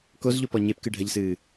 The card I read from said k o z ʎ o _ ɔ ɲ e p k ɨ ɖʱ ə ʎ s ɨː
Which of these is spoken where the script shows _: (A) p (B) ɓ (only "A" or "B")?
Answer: A